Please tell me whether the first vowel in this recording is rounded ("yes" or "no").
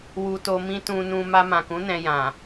yes